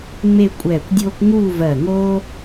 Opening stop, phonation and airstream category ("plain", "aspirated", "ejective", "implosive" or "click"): ejective